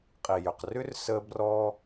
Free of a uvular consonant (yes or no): no